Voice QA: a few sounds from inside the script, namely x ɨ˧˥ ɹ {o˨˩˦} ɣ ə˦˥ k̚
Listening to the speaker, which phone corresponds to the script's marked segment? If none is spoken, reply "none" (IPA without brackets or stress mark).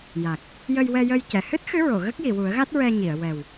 o˨˩˨